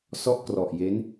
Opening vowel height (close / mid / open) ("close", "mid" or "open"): mid